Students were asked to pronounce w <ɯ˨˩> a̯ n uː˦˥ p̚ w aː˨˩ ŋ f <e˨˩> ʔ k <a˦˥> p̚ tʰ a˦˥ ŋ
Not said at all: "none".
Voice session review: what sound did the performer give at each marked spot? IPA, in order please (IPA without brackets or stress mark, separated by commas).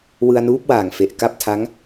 ɯ˧, e˨˩, a˥˩